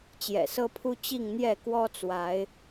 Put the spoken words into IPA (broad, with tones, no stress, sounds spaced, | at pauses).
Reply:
t͡ɕ j ɛ̰˨˩ s ɤ˦ pʰ u˦ t͡ɕ i˥˨ ŋ n̪ j ɛ˥˨ k w ɔ˦ t͡s w a˨˦ ɪ̯